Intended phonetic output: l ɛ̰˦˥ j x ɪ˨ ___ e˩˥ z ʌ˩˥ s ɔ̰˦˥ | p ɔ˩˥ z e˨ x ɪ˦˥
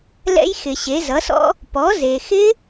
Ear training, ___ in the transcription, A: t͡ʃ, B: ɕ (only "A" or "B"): B